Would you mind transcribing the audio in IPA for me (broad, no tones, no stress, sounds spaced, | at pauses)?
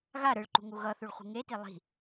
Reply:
ɣ a ɾ ɯ ɭ ǃ ṳ ŋ u ɣ ʌ θ u ɭ χʷ i̤ ŋ e t i lˠ i̤